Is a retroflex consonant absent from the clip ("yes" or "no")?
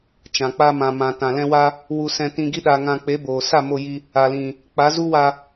yes